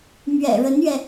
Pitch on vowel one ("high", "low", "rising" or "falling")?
low